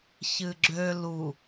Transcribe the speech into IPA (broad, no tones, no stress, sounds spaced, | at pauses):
ç ɨ ɡ͡ǁ ø l u